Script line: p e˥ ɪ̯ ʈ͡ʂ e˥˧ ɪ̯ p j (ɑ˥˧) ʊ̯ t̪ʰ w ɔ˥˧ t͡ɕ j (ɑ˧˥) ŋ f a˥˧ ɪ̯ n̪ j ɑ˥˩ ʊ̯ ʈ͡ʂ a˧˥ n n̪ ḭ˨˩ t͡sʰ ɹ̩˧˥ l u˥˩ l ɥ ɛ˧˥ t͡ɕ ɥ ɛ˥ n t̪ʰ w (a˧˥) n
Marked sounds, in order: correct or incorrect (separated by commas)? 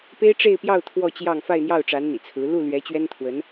correct, incorrect, incorrect